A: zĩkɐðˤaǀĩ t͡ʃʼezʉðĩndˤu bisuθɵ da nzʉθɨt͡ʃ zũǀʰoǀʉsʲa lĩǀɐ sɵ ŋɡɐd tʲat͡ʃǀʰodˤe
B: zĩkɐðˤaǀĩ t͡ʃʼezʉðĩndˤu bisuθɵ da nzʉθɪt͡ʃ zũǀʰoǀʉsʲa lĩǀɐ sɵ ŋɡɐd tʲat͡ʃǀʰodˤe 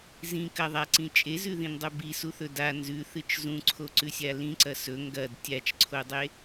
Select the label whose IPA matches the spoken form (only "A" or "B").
A